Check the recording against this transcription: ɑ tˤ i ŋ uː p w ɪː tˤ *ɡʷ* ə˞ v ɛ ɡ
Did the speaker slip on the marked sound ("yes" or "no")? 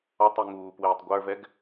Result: no